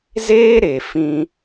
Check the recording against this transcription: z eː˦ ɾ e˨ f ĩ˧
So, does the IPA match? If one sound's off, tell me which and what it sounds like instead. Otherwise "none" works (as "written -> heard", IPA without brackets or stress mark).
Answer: none